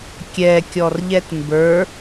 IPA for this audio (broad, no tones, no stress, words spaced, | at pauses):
kʲɛ kʲɔrʎɛtmbə˞